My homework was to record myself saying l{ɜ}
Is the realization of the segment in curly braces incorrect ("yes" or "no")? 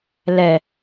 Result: yes